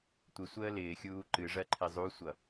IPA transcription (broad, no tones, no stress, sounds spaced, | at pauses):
tʷ ɪ sʷ əː l ɪː xʲ uː ǃ ɨ ʐ ɜ ǃʰ ɪ zˤ u sʷ ʌ